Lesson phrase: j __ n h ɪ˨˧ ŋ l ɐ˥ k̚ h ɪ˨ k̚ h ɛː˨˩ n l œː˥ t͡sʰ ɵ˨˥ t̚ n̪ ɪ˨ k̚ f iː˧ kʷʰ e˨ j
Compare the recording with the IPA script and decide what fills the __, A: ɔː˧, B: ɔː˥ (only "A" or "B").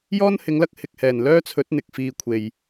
B